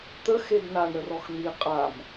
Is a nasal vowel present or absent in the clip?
absent